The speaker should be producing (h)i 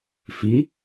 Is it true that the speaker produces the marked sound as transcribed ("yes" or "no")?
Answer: no